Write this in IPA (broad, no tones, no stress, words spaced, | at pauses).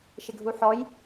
ʃɪɡʱuħɔj